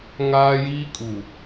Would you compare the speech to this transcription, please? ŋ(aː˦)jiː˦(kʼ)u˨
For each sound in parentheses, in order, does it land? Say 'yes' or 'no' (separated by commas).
yes, yes